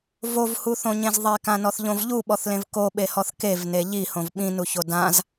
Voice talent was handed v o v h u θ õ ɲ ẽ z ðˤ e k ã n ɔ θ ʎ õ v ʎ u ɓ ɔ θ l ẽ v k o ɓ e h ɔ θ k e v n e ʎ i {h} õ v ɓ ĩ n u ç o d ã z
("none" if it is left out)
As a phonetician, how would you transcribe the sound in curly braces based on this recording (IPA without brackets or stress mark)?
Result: h